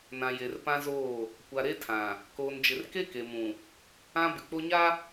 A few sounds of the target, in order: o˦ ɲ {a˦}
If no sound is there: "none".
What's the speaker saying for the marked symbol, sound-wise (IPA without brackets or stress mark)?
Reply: a˦